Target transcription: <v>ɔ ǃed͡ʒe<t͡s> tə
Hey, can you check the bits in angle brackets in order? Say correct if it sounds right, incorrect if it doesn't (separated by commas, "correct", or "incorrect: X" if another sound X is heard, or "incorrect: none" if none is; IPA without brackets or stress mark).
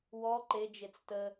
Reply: incorrect: w, correct